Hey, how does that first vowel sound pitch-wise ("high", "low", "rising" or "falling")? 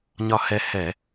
falling